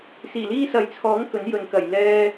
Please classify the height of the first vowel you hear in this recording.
high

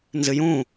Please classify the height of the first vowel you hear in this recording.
high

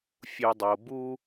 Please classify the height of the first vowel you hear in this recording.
high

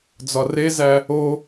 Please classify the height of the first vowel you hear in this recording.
low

